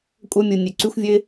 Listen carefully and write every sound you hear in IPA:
kʷʼ œ˦ mʲ u˨ nʲ ø˨ ǀ y˦ xʷ vʲ ø˦ ɪ̯

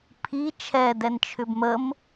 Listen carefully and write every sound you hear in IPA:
pʰ i t͡ʃʰ ɛ d ɛ n t͡ʃʰ ʏ b m ə m

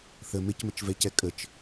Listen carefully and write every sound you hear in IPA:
θ ə m ɪ c m ə t͡ʃ v ɛ c ɛ kʼ ə t͡ʃ

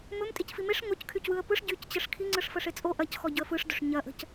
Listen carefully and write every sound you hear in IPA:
m ɵ m tʼ i c f i m e ʂ ŋ o c kʰ y c w ɯ ə̯ p ɯ ʂ ɟ y c t͡ɕ ə ʂ kʰ i ŋ͡ǀ ɯ ʂ f ə ʂ e t͡sʼ o ʔ ɐ c x ɔ ɟ ɵ ə̯ f ɯ ʂ d ɵ ʂ ɲ ɐ ʔ ə̤ c

